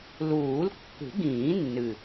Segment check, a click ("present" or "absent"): absent